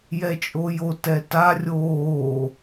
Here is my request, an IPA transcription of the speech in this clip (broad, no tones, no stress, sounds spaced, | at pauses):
j ɛ t͡ʃʼ o j o t ɛ t a rʲ oː